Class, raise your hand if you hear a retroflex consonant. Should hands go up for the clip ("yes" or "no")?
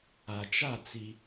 no